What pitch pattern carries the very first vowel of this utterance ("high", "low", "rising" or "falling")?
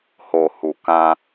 low